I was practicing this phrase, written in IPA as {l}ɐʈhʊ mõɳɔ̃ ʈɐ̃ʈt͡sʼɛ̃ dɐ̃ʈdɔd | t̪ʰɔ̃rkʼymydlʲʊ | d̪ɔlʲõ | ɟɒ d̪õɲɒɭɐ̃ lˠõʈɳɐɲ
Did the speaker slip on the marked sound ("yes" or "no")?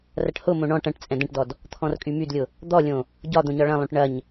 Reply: yes